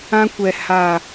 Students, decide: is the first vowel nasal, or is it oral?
nasal